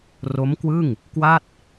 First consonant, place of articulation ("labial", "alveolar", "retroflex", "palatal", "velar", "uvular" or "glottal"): alveolar